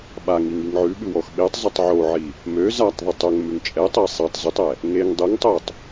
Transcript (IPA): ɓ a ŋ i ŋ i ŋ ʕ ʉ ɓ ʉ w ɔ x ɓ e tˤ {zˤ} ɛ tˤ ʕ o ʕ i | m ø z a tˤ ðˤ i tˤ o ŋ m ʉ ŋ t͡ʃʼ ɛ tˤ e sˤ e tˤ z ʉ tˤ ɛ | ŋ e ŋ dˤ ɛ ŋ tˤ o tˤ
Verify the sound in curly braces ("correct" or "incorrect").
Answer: correct